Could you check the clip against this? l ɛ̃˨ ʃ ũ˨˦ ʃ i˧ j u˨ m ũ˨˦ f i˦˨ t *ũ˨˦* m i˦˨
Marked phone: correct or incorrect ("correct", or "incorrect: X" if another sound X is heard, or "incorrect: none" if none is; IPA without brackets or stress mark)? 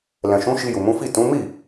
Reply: correct